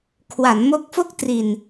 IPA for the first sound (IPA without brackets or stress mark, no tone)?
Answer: kʰ